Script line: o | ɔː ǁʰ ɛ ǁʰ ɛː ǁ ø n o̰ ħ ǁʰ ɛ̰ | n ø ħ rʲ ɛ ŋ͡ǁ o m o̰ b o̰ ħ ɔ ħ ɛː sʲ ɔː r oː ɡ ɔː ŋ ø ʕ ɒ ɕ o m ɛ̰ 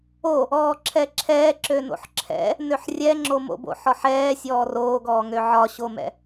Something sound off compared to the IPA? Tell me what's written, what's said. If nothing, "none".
none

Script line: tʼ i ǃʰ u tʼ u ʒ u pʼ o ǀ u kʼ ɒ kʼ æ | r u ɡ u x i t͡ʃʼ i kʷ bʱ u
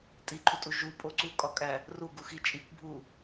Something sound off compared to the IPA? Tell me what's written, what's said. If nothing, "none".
none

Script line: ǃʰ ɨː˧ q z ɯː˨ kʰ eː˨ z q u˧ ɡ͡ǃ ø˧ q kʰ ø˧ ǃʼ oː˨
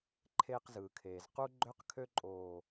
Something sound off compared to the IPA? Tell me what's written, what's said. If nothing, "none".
ɨː˧ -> eː˧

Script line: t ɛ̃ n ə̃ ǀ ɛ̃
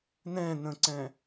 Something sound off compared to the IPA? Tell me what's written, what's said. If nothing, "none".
t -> n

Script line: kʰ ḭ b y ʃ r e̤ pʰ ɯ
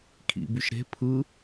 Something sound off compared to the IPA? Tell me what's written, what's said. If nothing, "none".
r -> ɾ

